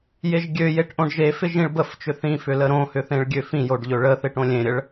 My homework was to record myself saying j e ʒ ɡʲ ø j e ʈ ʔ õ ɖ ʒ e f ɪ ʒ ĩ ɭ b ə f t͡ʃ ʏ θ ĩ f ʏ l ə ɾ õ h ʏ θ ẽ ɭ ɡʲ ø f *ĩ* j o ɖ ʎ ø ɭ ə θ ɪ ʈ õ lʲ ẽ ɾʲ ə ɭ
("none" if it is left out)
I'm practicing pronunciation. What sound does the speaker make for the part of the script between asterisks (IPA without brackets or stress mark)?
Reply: ĩ